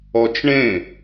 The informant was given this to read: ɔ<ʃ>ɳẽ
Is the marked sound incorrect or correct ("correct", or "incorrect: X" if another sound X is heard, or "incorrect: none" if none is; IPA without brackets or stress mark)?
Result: incorrect: t͡ʃ